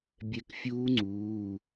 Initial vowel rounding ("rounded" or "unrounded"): unrounded